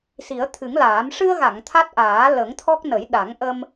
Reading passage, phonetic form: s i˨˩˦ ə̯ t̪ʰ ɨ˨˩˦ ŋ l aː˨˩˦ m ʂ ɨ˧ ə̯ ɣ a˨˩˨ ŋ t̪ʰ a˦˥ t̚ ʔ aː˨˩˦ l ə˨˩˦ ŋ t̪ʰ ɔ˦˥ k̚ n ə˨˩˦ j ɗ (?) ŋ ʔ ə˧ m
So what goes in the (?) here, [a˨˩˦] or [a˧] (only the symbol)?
a˨˩˦